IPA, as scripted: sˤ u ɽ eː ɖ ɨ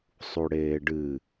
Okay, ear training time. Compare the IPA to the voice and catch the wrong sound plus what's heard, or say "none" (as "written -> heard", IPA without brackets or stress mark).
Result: none